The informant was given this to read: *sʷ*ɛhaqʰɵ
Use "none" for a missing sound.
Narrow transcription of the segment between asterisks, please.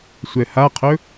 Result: sʷ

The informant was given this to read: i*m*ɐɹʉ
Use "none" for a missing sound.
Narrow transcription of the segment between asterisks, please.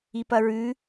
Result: p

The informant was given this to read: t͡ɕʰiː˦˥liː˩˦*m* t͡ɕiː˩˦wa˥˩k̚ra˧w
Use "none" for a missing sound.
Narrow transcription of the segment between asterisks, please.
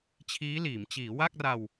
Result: m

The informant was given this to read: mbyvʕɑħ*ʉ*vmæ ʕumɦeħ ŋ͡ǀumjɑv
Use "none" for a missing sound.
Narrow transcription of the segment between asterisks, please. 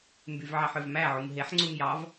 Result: ø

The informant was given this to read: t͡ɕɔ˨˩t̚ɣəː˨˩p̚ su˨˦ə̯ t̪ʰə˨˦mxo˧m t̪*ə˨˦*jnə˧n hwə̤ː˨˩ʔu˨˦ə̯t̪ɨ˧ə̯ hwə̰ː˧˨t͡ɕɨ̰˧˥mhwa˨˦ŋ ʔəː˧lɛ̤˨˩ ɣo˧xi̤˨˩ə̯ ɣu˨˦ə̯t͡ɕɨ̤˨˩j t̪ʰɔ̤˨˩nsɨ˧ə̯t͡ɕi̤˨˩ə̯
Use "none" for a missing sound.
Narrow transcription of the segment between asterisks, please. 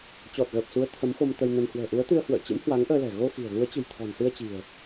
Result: ə˧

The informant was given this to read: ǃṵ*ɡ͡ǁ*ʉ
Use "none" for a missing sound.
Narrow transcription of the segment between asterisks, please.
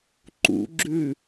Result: ɡ͡ǁ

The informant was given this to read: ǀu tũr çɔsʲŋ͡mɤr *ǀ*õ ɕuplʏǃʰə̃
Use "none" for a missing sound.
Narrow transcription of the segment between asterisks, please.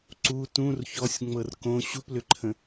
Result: k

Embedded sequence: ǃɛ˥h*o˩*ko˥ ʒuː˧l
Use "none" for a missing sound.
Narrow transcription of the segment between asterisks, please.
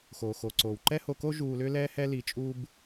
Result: o˧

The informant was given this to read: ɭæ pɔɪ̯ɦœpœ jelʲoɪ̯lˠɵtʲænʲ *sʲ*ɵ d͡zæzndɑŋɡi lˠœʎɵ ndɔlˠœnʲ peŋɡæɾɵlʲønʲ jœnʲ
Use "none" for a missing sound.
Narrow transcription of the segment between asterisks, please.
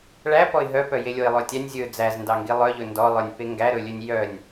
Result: zʲ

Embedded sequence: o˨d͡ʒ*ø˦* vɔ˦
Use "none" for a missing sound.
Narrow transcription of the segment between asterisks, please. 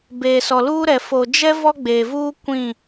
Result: ɛ˦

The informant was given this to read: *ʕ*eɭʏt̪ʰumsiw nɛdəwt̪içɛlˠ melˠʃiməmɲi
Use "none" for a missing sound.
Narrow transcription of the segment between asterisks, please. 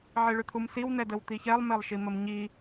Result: ʕ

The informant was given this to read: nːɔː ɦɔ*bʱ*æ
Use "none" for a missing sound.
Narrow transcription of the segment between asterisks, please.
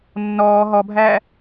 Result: bʱ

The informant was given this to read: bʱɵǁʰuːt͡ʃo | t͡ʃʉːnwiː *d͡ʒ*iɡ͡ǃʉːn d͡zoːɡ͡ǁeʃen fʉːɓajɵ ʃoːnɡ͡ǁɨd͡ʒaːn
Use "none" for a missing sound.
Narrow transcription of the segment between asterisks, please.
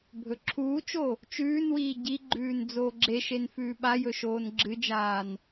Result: ɟ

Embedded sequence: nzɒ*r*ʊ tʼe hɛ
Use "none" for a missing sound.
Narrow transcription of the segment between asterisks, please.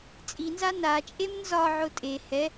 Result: ʕ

